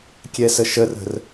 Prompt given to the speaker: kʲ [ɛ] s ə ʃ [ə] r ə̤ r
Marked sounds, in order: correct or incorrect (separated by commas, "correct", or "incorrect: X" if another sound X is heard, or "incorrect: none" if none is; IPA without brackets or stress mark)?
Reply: correct, correct